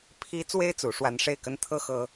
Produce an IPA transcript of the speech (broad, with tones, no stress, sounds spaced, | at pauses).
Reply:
pʰ i˥ t͡s w e˥ ɪ̯ t͡s u˧˥ ʂ w a˥ n ʂ e˥˩ ɪ̯ k ə˥ n t̪ʰ ɤ˥ x ɤ˥